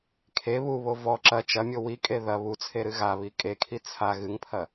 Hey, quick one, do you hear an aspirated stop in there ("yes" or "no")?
yes